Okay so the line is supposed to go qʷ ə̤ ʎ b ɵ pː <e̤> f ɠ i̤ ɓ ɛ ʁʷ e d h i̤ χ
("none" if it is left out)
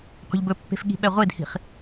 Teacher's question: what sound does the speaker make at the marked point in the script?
e̤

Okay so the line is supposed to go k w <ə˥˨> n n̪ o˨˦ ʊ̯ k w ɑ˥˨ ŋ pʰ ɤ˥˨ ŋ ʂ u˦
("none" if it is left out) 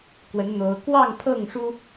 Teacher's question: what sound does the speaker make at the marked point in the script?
ə˨˦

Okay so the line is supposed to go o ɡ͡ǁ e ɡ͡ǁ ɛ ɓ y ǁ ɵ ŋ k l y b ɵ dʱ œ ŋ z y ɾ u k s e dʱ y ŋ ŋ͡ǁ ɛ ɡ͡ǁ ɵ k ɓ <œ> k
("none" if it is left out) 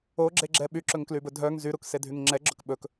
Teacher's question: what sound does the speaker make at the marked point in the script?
ɵ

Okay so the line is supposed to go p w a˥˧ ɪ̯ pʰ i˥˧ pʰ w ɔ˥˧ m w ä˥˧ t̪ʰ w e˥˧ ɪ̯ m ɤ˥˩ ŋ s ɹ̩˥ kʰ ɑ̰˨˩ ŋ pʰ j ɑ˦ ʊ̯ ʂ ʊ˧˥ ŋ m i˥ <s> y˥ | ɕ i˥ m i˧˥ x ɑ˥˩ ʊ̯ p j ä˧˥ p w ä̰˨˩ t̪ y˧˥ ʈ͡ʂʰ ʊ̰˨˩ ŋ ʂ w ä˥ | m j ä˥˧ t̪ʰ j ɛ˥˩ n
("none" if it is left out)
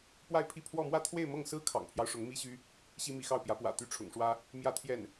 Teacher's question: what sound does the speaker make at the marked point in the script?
ɕ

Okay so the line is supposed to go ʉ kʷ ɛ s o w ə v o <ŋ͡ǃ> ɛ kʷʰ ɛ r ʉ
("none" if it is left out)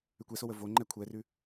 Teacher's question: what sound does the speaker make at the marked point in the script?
ŋ͡ǃ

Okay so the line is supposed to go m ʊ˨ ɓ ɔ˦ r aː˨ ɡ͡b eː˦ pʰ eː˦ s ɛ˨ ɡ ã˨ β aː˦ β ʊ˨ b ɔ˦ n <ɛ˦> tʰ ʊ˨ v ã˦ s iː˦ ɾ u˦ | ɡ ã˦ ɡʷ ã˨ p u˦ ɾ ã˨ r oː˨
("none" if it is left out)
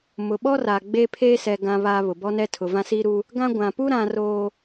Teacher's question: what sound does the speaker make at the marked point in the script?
ɛ˦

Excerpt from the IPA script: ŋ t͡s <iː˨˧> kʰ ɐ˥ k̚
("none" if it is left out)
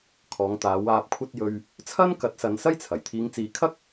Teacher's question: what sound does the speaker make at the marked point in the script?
iː˨˧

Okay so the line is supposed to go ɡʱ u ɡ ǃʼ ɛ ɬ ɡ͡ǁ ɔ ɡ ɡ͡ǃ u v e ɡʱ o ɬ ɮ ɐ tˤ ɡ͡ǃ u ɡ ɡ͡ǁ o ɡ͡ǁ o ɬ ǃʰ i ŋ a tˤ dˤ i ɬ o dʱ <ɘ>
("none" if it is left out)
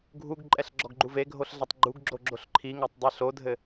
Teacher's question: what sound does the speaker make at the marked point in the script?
ɘ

